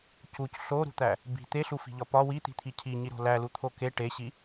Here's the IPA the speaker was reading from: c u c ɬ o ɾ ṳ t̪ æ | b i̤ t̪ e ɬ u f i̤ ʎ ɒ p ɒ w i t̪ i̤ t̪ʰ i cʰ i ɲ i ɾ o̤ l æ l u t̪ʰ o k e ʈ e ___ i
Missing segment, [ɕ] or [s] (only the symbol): ɕ